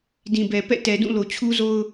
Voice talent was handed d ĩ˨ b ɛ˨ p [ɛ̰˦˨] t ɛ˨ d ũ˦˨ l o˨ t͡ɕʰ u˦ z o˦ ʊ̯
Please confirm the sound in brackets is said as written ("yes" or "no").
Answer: yes